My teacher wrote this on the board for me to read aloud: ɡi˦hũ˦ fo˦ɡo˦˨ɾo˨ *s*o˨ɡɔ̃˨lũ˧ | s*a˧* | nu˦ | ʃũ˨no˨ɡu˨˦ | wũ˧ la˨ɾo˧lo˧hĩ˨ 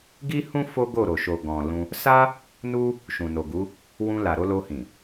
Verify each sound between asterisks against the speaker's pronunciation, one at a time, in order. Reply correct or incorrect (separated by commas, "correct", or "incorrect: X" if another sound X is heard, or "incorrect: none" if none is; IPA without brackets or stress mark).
incorrect: ʃ, incorrect: a˦